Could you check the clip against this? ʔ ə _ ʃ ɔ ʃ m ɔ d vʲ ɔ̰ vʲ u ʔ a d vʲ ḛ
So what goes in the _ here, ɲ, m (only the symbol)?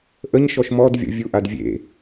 ɲ